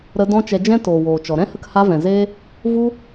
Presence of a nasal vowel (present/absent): present